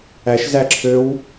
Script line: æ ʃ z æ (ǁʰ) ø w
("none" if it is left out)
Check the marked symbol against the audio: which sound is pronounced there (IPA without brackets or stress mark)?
ǁʰ